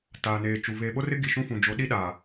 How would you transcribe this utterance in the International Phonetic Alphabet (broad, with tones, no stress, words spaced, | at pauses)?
taː˨neː˨t͡ʃu˨ veː˨ɓo˦rɪ˦ ɡi˨ʃũ˦fũ˨ d͡ʒo˨˦ɗi˦ɗaː˨